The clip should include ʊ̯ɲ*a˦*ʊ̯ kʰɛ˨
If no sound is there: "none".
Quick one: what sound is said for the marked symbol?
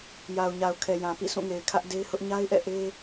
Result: a˨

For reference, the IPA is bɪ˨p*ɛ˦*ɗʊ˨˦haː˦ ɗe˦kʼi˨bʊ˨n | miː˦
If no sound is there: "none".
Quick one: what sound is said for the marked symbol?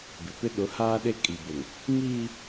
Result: ɪ˦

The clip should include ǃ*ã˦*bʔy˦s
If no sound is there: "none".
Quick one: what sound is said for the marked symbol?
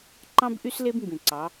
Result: ɑ̃˦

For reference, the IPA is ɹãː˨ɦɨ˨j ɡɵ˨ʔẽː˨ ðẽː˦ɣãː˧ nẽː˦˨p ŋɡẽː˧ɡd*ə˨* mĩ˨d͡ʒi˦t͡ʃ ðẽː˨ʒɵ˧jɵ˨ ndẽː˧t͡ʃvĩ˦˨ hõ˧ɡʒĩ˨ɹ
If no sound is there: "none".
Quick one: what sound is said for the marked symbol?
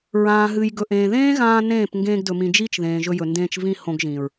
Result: ɵ˨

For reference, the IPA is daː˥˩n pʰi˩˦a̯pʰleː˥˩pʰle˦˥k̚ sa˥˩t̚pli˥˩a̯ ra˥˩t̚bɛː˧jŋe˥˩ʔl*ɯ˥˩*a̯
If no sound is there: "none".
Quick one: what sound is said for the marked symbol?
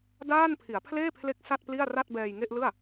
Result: ɯ˥˩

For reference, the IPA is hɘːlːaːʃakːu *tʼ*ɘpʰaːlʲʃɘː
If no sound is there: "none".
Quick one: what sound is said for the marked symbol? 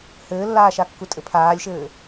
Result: tʼ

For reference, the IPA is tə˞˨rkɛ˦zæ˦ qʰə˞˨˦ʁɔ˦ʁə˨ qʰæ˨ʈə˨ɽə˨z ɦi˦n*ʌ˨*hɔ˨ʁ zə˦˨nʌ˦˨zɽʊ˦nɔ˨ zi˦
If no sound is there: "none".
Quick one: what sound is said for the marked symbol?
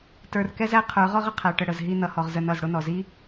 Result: ʌ˨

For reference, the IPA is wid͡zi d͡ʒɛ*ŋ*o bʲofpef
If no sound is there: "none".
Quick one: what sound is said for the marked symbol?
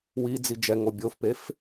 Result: ŋ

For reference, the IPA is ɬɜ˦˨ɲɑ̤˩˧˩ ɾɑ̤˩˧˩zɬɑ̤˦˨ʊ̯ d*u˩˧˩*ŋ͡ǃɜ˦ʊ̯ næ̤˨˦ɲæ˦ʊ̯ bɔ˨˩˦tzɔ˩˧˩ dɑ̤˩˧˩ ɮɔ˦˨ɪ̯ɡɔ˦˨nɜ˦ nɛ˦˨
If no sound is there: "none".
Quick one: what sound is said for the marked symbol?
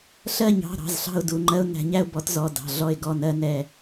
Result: u˩˧˩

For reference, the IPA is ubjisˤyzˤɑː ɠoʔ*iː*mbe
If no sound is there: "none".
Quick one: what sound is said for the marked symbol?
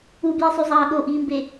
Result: iː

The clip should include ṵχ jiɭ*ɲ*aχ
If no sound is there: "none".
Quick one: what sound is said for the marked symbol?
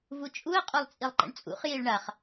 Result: ɳ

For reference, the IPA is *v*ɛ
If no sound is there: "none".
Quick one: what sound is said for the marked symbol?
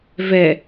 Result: v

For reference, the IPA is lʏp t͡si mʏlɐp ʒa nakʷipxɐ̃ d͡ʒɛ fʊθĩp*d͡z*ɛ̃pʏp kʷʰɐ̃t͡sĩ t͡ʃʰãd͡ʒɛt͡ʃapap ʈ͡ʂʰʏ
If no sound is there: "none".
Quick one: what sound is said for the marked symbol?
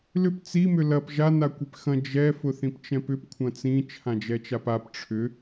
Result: t͡ʃ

